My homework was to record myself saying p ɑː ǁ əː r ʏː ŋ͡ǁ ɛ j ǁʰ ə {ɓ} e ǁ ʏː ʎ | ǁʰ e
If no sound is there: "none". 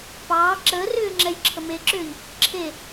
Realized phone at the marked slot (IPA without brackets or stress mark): m